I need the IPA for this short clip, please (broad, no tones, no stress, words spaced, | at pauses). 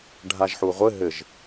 ɖʱaʒħuʁʷɘ ɦɘʒ